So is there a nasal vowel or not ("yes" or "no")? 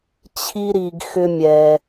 no